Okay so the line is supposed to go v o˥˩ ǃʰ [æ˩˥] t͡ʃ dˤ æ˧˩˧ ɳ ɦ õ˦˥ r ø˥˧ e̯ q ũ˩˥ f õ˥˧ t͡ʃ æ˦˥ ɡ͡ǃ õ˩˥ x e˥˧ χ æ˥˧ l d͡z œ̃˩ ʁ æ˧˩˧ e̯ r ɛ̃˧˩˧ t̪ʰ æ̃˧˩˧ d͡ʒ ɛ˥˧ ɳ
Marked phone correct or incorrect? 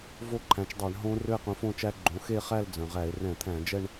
incorrect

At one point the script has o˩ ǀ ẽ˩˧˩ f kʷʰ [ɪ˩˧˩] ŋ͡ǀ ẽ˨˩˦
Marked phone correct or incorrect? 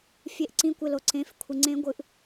incorrect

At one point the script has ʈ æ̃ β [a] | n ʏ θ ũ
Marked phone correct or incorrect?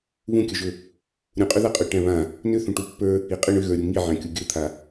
incorrect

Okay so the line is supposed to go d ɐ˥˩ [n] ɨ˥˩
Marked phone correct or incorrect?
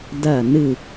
correct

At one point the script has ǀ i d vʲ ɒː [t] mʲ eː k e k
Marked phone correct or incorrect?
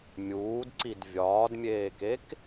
incorrect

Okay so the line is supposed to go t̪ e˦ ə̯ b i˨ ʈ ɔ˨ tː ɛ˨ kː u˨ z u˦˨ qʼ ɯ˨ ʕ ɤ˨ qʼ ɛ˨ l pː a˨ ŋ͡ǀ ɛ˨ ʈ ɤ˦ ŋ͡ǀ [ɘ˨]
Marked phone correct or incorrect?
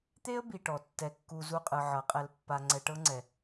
incorrect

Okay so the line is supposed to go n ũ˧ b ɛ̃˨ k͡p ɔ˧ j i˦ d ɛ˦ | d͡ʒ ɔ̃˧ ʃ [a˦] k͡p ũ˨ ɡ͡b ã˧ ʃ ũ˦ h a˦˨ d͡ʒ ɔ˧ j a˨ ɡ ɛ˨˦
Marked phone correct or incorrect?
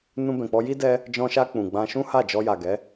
incorrect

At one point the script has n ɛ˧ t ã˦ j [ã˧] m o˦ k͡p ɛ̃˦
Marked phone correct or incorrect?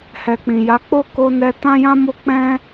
incorrect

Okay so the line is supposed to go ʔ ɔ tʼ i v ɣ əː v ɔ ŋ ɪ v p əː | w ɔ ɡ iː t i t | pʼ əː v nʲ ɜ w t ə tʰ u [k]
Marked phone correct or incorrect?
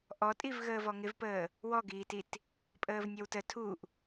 incorrect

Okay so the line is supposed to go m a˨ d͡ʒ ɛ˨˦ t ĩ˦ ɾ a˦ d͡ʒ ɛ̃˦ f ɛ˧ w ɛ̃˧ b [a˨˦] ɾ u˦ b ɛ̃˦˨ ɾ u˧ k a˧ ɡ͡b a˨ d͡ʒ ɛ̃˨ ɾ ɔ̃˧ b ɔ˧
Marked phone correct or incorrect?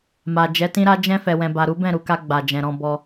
incorrect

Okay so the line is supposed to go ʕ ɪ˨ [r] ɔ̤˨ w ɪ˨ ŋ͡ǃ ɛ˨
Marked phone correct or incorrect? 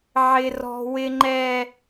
correct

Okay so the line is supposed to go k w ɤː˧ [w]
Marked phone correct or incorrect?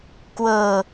incorrect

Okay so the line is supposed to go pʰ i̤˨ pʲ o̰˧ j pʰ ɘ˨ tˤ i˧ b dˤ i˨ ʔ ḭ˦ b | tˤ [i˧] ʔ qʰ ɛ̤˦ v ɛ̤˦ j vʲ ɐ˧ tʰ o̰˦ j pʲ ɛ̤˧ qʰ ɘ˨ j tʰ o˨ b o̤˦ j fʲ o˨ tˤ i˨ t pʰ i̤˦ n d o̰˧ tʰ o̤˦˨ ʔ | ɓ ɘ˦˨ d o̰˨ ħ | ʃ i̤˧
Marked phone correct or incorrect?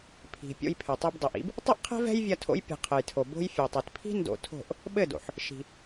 incorrect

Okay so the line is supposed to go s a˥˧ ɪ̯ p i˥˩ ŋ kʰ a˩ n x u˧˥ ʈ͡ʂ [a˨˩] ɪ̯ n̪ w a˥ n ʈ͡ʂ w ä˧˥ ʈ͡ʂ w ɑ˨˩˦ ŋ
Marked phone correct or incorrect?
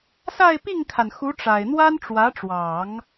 correct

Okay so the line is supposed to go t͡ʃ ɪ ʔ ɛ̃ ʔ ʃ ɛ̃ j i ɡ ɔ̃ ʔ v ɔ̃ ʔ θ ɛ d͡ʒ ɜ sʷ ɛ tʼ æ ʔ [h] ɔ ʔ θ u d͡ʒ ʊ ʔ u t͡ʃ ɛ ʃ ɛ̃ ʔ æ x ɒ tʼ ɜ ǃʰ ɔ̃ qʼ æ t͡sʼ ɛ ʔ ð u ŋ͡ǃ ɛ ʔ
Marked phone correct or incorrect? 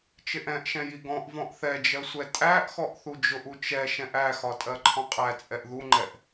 incorrect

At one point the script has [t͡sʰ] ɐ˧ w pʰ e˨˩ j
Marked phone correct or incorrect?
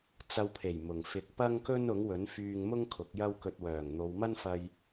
incorrect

